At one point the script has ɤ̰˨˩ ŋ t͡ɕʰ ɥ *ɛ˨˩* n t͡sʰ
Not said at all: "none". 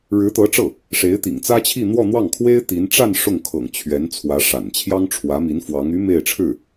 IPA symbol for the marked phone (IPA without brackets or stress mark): ɛ˧˥